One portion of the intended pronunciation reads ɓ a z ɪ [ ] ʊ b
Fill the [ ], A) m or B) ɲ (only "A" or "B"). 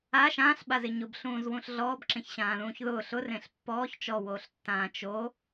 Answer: B